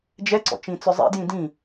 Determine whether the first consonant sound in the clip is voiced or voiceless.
voiced